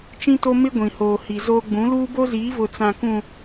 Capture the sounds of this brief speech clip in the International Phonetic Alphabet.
t͡ʃĩ˦to˦ mɪ˦ ɡʷĩ˨hoː˨hi˨zoː˦ ɡ͡bũ˨˦luː˦ bo˦ziː˨˦ vʊ˨t͡sã˨kũ˨

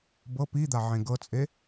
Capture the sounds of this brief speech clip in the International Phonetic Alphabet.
bɤ pid̪a ʕẽɡɤt͡sʼe

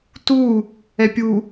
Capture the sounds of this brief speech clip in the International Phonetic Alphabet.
tu | ɛpʲu

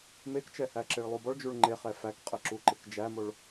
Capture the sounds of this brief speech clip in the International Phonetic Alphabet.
mekt͡ʃɛhæ ǁeɭlˠubɔɭd͡ʒuɭ ŋ͡ǃeχɛ fækqʼəǁu ǃɪkd͡ʒæmoɭ

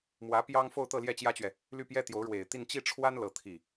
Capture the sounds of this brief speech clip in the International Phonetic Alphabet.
mwä˧˥ pjɑ˥ŋ fo˥˧ʊ̯t̪ɤ˥˧ljɛ˥˩ t͡ɕjä˥t͡ɕɥɛ˨ | ly˥˩pjɛ˥t̪jo˧˥ʊ̯ ɻwe˨˩ɪ̯t̪i˥˧n t͡ɕi˥˩ʈ͡ʂʰwa˥n lɤ˥˧t̪ʰi˥˩

